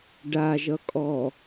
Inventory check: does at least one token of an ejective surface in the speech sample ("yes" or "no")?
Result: yes